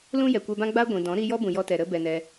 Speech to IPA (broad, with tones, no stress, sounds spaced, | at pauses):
l ũ˦ j ɛ˨ kʷ ɛ˧ b ã˦ ɡ͡b a˦ ɡʷ ĩ˨ d ɔ̃˨˦ ɾ i˧ j ɔ˦ b ũ˧ j ɔ˦ t ɛ˧ ɾ ə˦ b ɛ˧ n ɛ˧